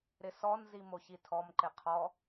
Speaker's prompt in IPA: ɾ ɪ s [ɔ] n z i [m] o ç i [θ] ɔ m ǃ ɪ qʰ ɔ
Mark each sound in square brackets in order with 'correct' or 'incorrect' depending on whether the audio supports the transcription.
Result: correct, correct, incorrect: tʰ

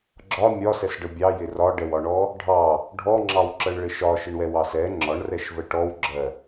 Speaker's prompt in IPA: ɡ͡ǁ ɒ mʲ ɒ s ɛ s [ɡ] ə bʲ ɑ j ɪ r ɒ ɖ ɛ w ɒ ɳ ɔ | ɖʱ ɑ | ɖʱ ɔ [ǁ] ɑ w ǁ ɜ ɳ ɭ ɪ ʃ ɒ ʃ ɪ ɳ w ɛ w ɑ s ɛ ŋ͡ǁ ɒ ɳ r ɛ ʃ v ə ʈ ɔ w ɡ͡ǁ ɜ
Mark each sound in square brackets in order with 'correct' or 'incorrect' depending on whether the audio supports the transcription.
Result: incorrect: ɖ, incorrect: ŋ͡ǁ

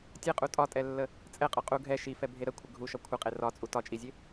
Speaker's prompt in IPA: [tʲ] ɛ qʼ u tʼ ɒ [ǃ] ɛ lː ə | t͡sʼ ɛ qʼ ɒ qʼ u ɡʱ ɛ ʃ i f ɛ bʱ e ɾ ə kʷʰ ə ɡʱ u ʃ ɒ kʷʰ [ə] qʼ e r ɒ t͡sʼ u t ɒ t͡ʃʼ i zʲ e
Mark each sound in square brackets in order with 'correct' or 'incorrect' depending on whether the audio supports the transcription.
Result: correct, incorrect: tʼ, correct

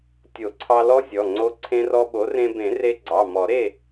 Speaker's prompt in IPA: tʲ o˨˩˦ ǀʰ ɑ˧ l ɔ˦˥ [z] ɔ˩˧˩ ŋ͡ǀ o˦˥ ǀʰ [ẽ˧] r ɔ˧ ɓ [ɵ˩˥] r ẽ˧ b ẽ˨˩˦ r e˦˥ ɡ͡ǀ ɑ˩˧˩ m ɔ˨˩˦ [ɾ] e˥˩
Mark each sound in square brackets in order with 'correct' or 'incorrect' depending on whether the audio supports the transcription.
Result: incorrect: zʲ, correct, incorrect: o˩˥, correct

